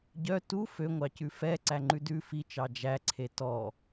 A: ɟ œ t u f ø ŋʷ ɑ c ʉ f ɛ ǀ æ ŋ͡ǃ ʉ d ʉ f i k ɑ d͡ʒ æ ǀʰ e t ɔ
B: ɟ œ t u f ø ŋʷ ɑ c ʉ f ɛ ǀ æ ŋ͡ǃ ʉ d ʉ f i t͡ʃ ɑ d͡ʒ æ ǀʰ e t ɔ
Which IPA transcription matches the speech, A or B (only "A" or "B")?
B